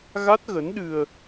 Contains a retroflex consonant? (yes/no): no